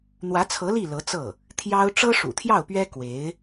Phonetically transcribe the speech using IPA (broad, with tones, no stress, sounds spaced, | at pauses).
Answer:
n̪ w ä˧˥ t͡sʰ ɤ˧˥ l i˥˩ l ɤ˧˥ t͡s ɤ˥˩ | t̪ʰ j ɑ˥ ʊ̯ ʈ͡ʂ ɤ˥ ʂ ṵ˨˩ t̪ʰ j ɑ˥˩ ʊ̯ p ɥ ɛ˥ k w e˧˥ ɪ̯